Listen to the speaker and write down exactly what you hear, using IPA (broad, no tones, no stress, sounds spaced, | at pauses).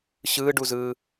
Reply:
ɕ ɯː ɖ u z ɯː